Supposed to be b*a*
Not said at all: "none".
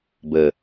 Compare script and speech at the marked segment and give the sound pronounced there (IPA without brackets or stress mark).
ə